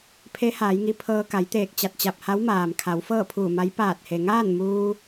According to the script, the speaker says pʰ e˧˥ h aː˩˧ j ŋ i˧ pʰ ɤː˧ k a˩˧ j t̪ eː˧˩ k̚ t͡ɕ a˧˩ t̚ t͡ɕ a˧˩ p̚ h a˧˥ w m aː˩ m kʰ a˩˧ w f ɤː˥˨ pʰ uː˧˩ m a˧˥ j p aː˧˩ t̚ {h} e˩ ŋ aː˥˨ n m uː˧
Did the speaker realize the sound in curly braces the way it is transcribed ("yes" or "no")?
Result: yes